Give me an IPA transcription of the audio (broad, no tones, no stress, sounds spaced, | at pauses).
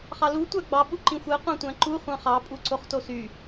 χ ɑ l u tʷ æ ɡ͡b ɑ ɓ u ǃ ĩ xʷ e qʷ ɑ̃ tʷ æ̃ ǃ u χʷ ɑ̃ χ ɑ pʼ u ǀ o χ t o s y